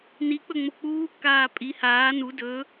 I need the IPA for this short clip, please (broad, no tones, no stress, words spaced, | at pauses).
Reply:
nik͡pɵŋ͡mo k͡puːkːaː pʼi haː nu dɵ